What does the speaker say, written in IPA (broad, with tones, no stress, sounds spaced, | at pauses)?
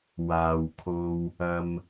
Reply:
w aː˨ w kʰ o˧ w | ɐ˧ m